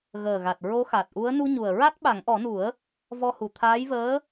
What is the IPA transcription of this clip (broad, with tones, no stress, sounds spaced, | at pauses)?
ɣ əː˨˩ ɣ a˨˩ t̚ ɹ o˧˥ x a˨˩ t̚ ʔ u˧˥ ə̯ n u˧ ɲ u˨˩ ə̯ ɹ a˦˥ t̚ ɓ a˨˩˦ ŋ ʔ ɔ˨˩˦ n u˨˩˦ ə̯ | v ɔ˧ h u˨˩ t̪ʰ aː˧˥ j v əː˧˥